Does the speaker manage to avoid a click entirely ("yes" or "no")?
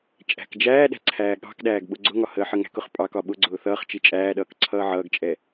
no